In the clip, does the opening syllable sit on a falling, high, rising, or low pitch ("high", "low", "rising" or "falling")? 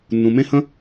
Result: low